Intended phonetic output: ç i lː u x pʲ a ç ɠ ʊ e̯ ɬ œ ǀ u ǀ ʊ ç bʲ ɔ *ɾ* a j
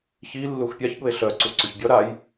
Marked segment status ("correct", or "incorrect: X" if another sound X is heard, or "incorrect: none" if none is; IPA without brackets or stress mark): correct